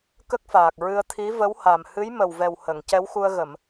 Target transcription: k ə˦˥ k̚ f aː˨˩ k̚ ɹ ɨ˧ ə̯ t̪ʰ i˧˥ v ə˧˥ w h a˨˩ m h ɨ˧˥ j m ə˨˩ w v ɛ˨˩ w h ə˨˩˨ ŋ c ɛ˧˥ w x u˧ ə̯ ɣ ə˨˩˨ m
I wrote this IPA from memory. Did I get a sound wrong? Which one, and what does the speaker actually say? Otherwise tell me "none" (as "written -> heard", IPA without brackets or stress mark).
none